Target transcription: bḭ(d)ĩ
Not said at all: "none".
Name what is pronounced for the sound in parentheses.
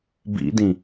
d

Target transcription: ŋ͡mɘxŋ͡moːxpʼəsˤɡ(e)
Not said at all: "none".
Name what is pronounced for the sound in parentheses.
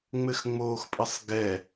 ɛ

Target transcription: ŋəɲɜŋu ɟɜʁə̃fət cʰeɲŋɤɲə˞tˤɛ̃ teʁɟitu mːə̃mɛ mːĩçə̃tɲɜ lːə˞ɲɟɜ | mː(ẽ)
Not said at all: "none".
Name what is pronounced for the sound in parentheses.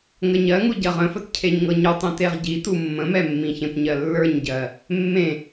ẽ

